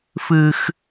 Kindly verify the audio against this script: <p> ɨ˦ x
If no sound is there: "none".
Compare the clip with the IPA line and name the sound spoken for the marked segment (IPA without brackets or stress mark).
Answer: f